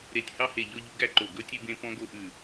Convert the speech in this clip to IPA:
ɾ e˨˩ tʲ h ɑ˧ h e˨˩ ʎ ɔ˧ ʎ u˧ ɡ æ˧ ǃ o˨˩ ɡ ɵ˧ tʲ ʉ˧ b ẽ˧ p ɔ̃˧ ɡ o˧ ʔ ʉ˨˩

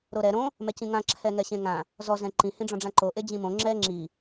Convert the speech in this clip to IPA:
ɾ o ɾ ɛ ɾ õ | m ɛ c ĩ ŋ ã ǁʰ ɛ ŋ ɛ ɕ ẽ ŋ ã | z ɔ z ɛ̃ ǃ ĩ h ĩ ɖ͡ʐ ɔ̃ ɖ͡ʐ ã ǃ o ʔ e d͡ʑ ĩ m õ ŋ͡ǁ ɛ ŋ͡ǁ i

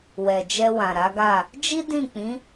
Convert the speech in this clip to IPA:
w ɛ˨ d͡ʒ ɛ˧ w ã˨ ɾ a˨˦ ɡ a˦˨ | d͡ʒ i˦ d ĩ˦˨ k͡p ĩ˨˦

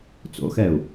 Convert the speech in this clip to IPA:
t͡s o̰ x ɛː u̯

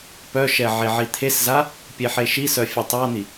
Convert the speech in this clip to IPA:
p œ ʃ ɛ ʕ e ʕ i t̪ʰ e s z a | pʲ e ħ e ʃ i s œ fʲ œ tˤ a n̪ i

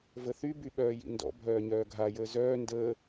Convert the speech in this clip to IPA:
v ə θ y b y ɓ œː j ḭ n d ɔ̰ bʱ œː ɲ œː ɡʱ a j əː z œː n d əː

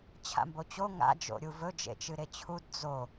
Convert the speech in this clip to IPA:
t͡ɕʰ a̰ m b o t͡ɕ o ŋ a̰ d͡ʒ o̰ ɾʲ u v ɵ d͡ʒ ḛ t͡ʃ ɨ ɾ e t͡ɕʰ u d d͡z o

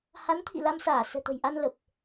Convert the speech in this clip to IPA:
h a˨˦ n t̪ʰ ḭ˧˨ l a˧ m s aː˧˩ s ɛ̤˨˩ t̪ ə̤˨˩ j ʔ a˧ n l ə˨˩ p̚

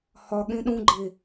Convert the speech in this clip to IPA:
h ɒ ɠ ẽ ɗ ũ ɡ͡ǃ e

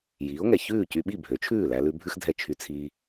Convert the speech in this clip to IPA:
j iː˩˥ o̯ ŋ ɛ˩ ç ʉː˥˩ c y˧ ɓ i˥˩ bʱ ø˩˥ t͡ʃʰ ʉː˥˩ l æ˧ l ʉ˧ bʱ ʉ˥ x dʱ ɛ˥˩ t͡ʃʰ y˧ t͡sʰ iː˧

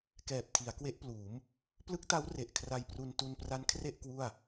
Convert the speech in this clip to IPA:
k ɛː˨˩ p̚ tʰ i˩˦ a̯ k w e˦˥ ʔ p l uː˩˦ m | p l ɯ˦˥ k̚ t a˦˥ w r e˨˩ ʔ kʰ r a˧ j p r u˧ n t u˧ n p r a˦˥ n kʰ r e˥˩ ʔ k w u˥˩ a̯

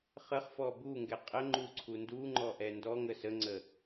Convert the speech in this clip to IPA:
χ ə χ f ɔ b u ŋ ɡ ɛ qʼ ə ŋ͡ǃ u ǀʰ u n d u ŋ͡ǃ ɔ ʔ ɛ n d ɔ ŋ ə s ə ŋ͡ǀ ə

